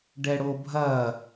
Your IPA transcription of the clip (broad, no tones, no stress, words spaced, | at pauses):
ɖɛɽobʱɐ